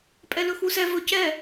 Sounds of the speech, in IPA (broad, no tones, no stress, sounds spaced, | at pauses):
pʼ ɛ l ɵ x u s ɛ v ɵ c ɛ